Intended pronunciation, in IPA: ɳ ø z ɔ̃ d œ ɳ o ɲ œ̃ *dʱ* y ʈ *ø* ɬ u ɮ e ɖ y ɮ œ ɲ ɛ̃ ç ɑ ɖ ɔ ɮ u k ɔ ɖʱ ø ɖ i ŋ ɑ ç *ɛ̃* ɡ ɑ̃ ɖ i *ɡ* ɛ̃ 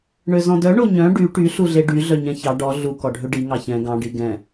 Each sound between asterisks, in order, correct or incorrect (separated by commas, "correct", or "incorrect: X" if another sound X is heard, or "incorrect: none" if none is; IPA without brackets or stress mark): incorrect: ɖ, incorrect: y, correct, correct